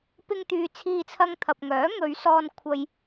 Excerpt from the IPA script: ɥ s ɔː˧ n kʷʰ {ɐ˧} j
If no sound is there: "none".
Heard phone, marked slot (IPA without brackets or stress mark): ɐ˧